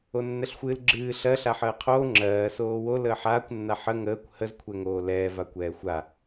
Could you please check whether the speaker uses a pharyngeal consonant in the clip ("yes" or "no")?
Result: yes